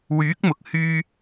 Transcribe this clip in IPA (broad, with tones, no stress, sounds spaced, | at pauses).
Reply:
w yː˨˥ k̚ m ʊ˨ k̚ h yː˧